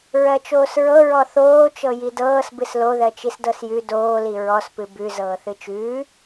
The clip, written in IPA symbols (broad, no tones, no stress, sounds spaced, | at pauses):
ɹ ɜ t͡ʃ oː s ɹ ɤ ɹ ɔ θ oː t͡ʃ ɤ j i d ɤː s b ɨ s l o ð ɜ t͡ʃ i s d ɤ s j ʉ d oː l i ɹ ɔ s p ɨ b ʉ z ɤː θ ɨ t͡ʃ ʉː